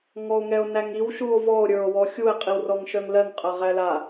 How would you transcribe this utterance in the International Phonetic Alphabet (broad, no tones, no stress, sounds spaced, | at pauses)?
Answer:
ŋ ɔ o̯ ŋ ɛ o̯ n æ ŋ i w ʃ u o̯ v ɔ o̯ ɾʲ ə˞ o̯ w ɔ xʲ u e̯ qʼ i w r ɔ ŋ ʃ œ ŋ l ɜ ŋ qʼ ɜ ʁ æ l a